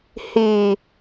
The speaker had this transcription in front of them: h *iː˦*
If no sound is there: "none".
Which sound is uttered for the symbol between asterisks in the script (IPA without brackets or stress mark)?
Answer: iː˨